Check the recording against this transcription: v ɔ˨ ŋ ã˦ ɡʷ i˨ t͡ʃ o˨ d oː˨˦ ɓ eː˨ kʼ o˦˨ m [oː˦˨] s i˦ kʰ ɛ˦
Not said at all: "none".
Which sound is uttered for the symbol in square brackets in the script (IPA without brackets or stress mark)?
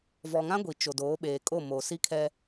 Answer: oː˨